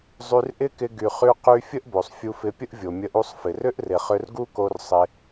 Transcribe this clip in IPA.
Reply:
zˤ y˧ r ʔ ɪ˦ k ɪ˧ ɡ y˨ χ y˧ q y˧ fʲ ə˦ ʔ b o˨ sˤ fʲ u˧ f ɪ˧ pʲ ə˦ ʔ vʲ o˨ mʲ ə˧ ʔ u˧ sˤ f ɪ˨ r ʏ˦ ʔ r ɪ˨ χ ʏ˧ r ɡ u˦ k o˧ r sˤ ɪ˧

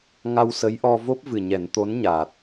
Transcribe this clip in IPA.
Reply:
ŋ a˧ w s ə˧˥ j ʔ ɔ˧ v o˦˥ p̚ v ɨ˨˩ ɲ ɛ˨˩˦ n t̪ o˧˥ n ɲ aː˨˩ t̚

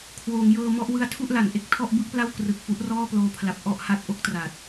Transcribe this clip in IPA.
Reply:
kʰ w oː˩˦ ŋ j ɤː˧ m ɔ˦˥ ʔ w ɯ˦˥ a̯ tʰ u˥˩ ʔ l a˩˦ n ʔ e˦˥ k̚ tʰ ɔ˥˩ ʔ b ɯ˥˩ k̚ p l a˥˩ w k r ɯ˨˩ k̚ f u˦˥ ʔ r ɔː˥˩ p l oː˧ pʰ l a˨˩ p̚ ʔ ɔ˥˩ ʔ h a˦˥ t̚ ʔ o˥˩ k̚ t r a˨˩ t̚

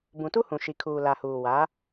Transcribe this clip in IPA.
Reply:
b ũ˨ t u˦ h ũ˨ ʃ i˨ kʰ uː˨ l a˨ h uː˨ w a˨˦

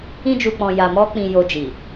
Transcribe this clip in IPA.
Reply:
ĩ˧ d͡ʒ u˨ k͡p ɔ̃˨ j a˨ m ɔ˧ k͡p ĩ˨ j o˨ d͡ʒ i˨

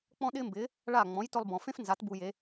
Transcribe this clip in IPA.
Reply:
k͡p ɔ̃˥ ɗ ɪː˥ m b ɪː˩˥ | ɭ a˥˩ ŋ͡m ɔ̃˩˥ j t ʊ˧ lˠ b ɔ̃˩ f ẽ˥ f n z a˩˥ t b u˧ j e˩˥

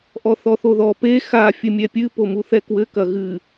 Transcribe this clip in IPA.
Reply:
ʔ ɔ θ ɔ θ o ð ɔ p e x a fʲ ɘ mʲ ɛ pʲ ɨ p o m u θ ɛ k w ɘ k ɐ ɣ ɨ

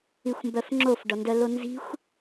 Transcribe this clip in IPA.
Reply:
i xʷ m b œ f ŋ͡ǁ o f ɖ ɔ n d œ l o n z i̤ xʷ

